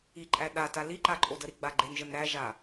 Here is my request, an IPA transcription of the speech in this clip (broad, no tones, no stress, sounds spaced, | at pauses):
i ǃʼ æ ɗ a t a l i ǃ a ǃʼ o d ə ɾ i ɡ͡b a ɡ͡ǃ e n ʒ ə n ɾ æ ʒ a